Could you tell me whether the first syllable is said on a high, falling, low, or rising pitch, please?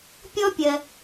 high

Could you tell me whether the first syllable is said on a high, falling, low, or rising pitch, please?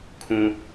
high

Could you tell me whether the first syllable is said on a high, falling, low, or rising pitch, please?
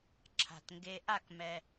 low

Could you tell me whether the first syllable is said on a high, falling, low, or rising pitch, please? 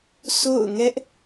falling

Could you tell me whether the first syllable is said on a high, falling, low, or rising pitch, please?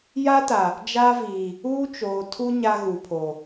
high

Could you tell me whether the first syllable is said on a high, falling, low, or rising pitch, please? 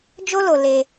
high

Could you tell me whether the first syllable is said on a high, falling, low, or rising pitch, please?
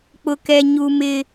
high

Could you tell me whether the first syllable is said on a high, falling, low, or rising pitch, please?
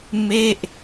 falling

